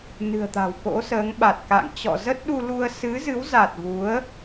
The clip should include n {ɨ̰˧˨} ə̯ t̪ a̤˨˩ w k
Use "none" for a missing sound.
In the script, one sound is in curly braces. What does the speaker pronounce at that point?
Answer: ɨ̤˨˩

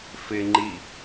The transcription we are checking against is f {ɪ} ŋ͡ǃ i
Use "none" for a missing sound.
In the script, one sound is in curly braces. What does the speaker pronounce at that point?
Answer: ɪ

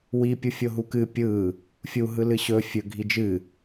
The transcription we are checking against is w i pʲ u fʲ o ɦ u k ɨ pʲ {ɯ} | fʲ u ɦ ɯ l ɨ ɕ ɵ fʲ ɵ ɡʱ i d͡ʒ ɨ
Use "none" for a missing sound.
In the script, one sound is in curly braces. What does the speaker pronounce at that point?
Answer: ɯ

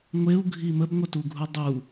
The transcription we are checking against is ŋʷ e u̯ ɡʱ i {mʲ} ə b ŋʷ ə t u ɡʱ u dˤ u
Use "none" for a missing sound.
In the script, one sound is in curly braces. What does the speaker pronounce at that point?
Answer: m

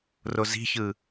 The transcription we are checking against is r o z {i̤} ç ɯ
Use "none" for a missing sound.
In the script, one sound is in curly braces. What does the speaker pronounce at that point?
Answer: i̤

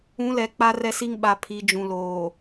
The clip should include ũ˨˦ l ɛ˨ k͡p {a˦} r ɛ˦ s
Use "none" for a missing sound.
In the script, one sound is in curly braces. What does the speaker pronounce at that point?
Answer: a˦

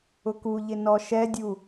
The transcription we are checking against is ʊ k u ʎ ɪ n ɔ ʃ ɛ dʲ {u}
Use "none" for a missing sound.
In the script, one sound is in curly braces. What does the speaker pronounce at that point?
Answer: u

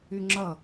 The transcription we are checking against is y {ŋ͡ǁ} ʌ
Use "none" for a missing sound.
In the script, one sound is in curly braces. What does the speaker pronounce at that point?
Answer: ŋ͡ǁ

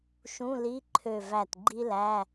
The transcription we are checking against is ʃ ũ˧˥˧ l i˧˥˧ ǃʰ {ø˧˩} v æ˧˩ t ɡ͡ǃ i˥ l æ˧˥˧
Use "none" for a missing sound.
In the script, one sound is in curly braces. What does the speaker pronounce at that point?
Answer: ø˧˩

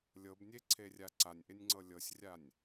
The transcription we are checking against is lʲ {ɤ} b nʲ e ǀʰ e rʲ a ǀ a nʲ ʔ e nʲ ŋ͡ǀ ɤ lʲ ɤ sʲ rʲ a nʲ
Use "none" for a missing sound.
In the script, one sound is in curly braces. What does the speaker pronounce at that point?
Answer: ɤ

